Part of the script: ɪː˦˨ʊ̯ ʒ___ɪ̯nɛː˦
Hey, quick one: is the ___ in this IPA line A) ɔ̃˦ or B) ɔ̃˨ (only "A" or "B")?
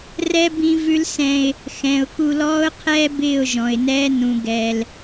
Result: B